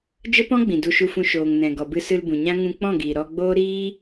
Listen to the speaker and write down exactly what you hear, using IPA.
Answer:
d͡ʒə˦pɔ̃˦ɡ͡bĩ˨ du˧ʃu˧fũ˧ ʃoː˨ŋnɛ̃˨ ɡɔ˨bɨ˧sɨ˧l bũ˨ɲã˦ ŋũ˧k͡pɔ̃˦˨ɡiː˨ ɾɔ˧ ɡ͡boː˦ɾiː˦

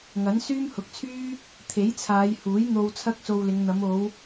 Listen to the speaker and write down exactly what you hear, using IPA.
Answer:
ŋɐ˨˥n syː˥mhʊ˨˥k̚t͡sʰyː˥ | t̪ʰe˨˥jt͡sʰaː˨˧j huː˨˥jn̪o˧w t͡sʰɐ˥k̚so˧wlɪ˨˧ŋ n̪ɐ˨˧mo˨˧w

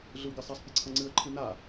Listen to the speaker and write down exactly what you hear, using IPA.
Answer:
ɮɨwɡɨsˤɐsˤ pʲɐǀʰɐŋ͡ǀɨə̯ǃʰɨ na

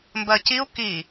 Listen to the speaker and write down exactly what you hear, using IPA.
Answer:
mbɜciu̯ ki

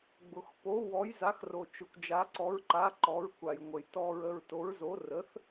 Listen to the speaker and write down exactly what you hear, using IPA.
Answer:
ɡ͡bʊ˧xpo˧˥ wɔ˧˥jza˧˥xro˧ t͡ʃʊ˧kʷd͡ʒa˧˥ǀɔ˧˥ɹǃa˧˥ ǃɔ˧˥ɹkʷa˧jŋʷə˧j tɔ˧ɹə˧ɹ to˧˥ɹzo˧˥ rə˧˥θ

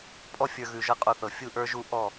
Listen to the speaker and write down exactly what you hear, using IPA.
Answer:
pʼɔ˥fʲə˞˧ ɣʉ˧ʒɤ˥˧qʼo˥˧θɤ˧˩ fʲu˥˧ʔə˞˥ʒu˥˧ ʔɔ˥˧

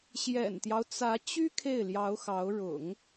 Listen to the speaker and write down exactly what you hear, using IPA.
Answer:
ɕjɛ̰˨˩nt̪jɑ˦ʊ̯t͡sä˧˥t͡ɕy˥ kʰe˥˩ɪ̯ljɑ˧˥ʊ̯xɑ˧˥ʊ̯ ɻʊ̰˨˩˦ŋ

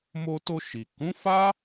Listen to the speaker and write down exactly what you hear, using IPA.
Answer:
mo˧to˧ ʃi˨kũ˨˦fa˦

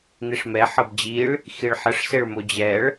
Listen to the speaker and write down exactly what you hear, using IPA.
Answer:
n̪iʂmɛ ħɤbd͡ʑiɭ | xiɭħəʂ seɭmod͡ʑɛɭ

